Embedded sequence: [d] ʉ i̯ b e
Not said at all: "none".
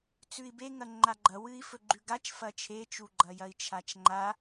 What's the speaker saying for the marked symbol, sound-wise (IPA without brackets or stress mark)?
t͡s